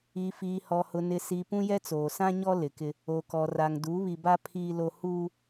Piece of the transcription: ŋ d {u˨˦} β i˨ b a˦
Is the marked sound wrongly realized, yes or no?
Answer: no